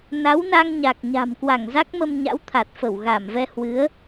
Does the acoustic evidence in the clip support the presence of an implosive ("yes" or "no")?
no